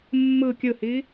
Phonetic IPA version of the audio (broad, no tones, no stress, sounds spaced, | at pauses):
mː ɯ kʲ ɯ h i